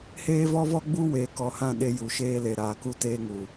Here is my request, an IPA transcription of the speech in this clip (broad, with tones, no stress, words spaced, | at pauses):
heː˦vɔ˦vɔ˦ɡ͡bu˦ weː˧kɔ˧hã˦˨ɗe˧ ju˨ʃeː˧le˨ ɾaː˨ku˧teː˧ŋu˨